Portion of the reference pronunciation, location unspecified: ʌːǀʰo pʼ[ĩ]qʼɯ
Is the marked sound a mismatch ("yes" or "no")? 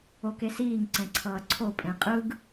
yes